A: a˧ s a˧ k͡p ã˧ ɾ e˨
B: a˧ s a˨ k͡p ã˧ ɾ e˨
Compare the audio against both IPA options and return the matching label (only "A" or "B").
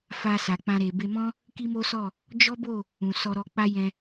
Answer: B